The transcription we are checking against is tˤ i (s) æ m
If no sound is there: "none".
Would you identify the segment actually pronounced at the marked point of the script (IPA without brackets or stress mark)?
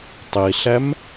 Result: ɬ